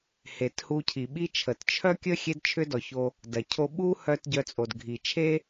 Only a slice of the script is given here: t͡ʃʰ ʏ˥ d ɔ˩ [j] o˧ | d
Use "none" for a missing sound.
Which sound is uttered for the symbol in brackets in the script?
ç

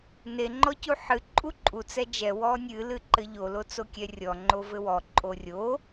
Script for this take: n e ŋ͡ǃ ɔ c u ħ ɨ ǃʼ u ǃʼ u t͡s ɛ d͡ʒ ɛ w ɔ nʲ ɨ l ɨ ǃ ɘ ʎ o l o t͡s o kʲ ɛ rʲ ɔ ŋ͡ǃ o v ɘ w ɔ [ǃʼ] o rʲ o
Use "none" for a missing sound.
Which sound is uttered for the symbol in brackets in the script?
ǃʼ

